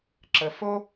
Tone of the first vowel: low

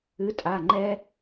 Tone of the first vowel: rising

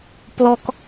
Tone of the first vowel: low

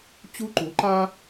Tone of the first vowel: high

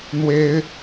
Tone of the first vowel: high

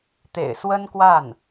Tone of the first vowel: low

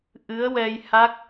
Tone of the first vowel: rising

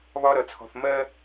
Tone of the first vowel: high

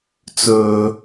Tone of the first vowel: low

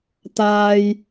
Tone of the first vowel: high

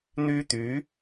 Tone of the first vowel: high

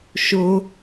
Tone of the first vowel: high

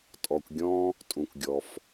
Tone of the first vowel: low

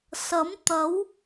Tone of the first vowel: rising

